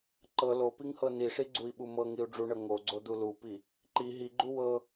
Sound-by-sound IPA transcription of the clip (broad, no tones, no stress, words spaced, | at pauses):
ǃɤ lopiŋhɤ niʂiɡ͡ǀui̯ɓu mɤŋiu̯ ɖ͡ʐuɳɤ ŋoɡ͡ǀod̪u lupi | ǃi ɦiɡ͡ǃu wɤ